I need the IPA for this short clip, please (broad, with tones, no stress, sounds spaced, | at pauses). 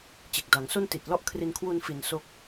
t͡ɕ e˨˩ k̚ d a˩˦ ŋ s o˥˩ n t i˨˩ t̚ l ɔ˥˩ ʔ kʰ r i˧ n kʰ w u˧ n f i˨˩ n s o˦˥ k̚